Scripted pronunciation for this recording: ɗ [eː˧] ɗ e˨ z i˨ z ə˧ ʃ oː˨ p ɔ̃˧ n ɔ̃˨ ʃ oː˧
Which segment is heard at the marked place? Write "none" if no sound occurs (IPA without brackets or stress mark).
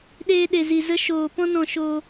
eː˧